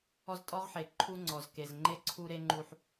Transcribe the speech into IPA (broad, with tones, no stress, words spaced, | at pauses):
ɔ˦ztʼɔ˦ʁħe˨ ǃʰu˦ŋ͡ǀɔ˨z ke˨z ŋ͡ǃe˦ ǀʰu˦ɾe˦ ŋ͡ǃu˦ħ